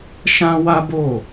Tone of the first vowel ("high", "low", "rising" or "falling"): high